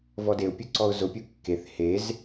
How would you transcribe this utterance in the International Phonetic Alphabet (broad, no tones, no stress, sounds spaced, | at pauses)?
v ɔ d e ʊ̯ pʲ u ǀ ɔ ʊ̯ z ʊ pʲ u kː e θ h e z